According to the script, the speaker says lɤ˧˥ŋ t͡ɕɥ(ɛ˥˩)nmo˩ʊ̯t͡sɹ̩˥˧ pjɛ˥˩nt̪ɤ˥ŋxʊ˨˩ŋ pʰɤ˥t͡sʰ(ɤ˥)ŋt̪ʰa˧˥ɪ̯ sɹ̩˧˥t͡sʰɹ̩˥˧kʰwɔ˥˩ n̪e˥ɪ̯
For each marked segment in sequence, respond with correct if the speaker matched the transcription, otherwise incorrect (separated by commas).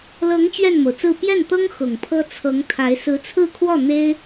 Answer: correct, incorrect